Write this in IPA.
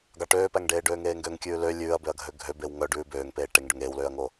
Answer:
ɡ ɑ ʈ øː p æ ŋ ɖ eː ɖ øː ŋ eː ŋ ɡ ø ŋ kʲ ʉː l ø lʲ ʉː ɐ̯ b ø ɐ̯ ɡʱ ø ɡʱ ø b e w ŋ œ ɖ ʉː b øː ŋ p eː ʈ e ŋ ɖ ø ŋ eː w l øː ɐ̯ ŋ o

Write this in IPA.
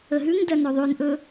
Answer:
ə ɦ ʉ ŋ d ɜ n ɵ ðˤ ʉ n ʔ ɵ

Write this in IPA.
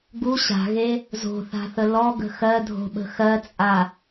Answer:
ɡ u ɕ a̤ ɣ e | z o̤ θ a̤ θ ə l ɔ ɡ ə̤ x ɜ dʱ o̤ ɓ ə̤ x ɜ t͡sʼ a

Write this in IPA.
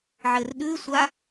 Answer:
ʕ ɘ r ɗ ʉ sʷ a

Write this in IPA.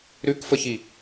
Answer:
ɾ ʉ k f ə ç i

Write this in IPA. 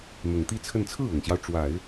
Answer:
n̪ ʊ˨˩ ŋ t̪ i˥˧ t͡sʰ ə˥˧ n t͡sʰ ɹ̩˥˩ ʊ˨˩ ŋ ɕ j ɑ˦ ʊ̯ ʈ͡ʂ w a˨˩˦ ɪ̯

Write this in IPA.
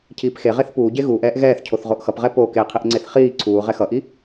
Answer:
cʰ iː p x e ʁ e θ p uː ɟ e ɣ uː ʔ ɛː ʔ ɣ ɛː θ cʰ o θ ʁ o ʔ x ʌ p ʁ ɛ p o k e qʰ i ʔ ŋ͡ǀ e θ χ iː ǀʰ uː ʁ ɛ x ʌ ʔ i

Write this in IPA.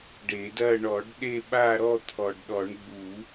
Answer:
ɖ e˨˩˦ d ɐ˥˧ ɳ ɔ˨˩˦ ɖ ɗ e˥˧ ɓ a˥˧ ɾ ɔ˥˧ t̪ʰ ɔ˨ ɖ ɗ ɔ˨˩˦ ɳ ɡ͡b u˨˩˦

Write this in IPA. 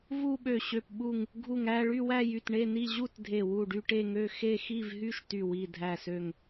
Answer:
v u˥˧ ɓ ø˧˩ ɕ ø˧˩ p ɓ u˧˩ ŋ | ɡʱ u˧˩ ŋ æ˥˧ ɭ y˥˧ w æ˥˧ j y˧˩ t ɳ e˥˧ n i˥˧ ʑ u˥˧ t dʱ e˧˩ w u˧˩ ɖ y˥˧ ʈ e˥˧ ŋ ø˥˧ x e˥˧ x i˥˧ v ɦ y˥˧ ʃ t y˧˩ w i˧˩ dʱ æ˧˩ s ø˧˩ ŋ

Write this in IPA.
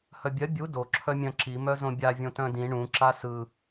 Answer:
h œ bʲ œ bʲ u d o ǁʰ œ mʲ œ̃ ǁ i m œ z õ bʲ a vʲ õ t œ̃ d ĩ ɳ ũ ǁ a s ɯ

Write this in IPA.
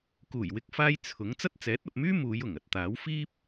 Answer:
k uː˨˩ j w ɪ˧ k̚ f aː˧ j t͡sʰ ʊ˨˥ ŋ t͡s ɐ˥ t̚ t͡s ɛː˨˥ t̚ ɐ˨ p̚ m yː˥ m uː˨˧ j ʊ˨˩ ŋ ɐ˨ t̚ t̪ aː˨˥ w f iː˥ p̚

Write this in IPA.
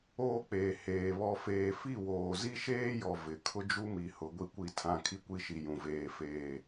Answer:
oː˦ k͡p eː˨ h eː˨ β ɔ˨ f eː˨ f i˦˨ w oː˨ z i˦ ʃ eː˦ j ɔ˨ v ɪ˨˦ kʰ ʊ˦ d͡ʒ u˦ m i˨ h ʊ˨˦ ɡʷ i˦ kʷ i˦˨ tʰ ã˦˨ kʰ i˦ kʷ i˦ ʃ i˨ j ũ˨ v eː˦˨ f eː˦˨

